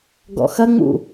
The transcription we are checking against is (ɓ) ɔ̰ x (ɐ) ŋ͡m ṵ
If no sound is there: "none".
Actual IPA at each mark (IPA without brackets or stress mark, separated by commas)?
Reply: ɡ, ɐ